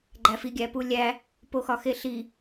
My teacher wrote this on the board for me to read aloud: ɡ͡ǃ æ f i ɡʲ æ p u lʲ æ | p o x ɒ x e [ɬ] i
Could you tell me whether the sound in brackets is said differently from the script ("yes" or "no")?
no